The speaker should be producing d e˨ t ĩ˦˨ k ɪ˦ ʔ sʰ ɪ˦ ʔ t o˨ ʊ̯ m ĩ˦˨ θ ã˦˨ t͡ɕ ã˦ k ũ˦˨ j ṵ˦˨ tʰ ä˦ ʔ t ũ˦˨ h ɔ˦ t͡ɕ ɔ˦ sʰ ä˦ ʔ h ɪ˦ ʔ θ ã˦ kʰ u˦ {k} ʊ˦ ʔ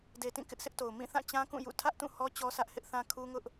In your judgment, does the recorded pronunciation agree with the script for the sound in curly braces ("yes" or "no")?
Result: no